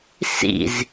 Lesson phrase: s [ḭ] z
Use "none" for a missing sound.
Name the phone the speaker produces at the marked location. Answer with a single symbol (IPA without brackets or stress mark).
ḭ